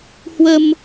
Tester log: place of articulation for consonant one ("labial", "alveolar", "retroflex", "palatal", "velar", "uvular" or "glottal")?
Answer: glottal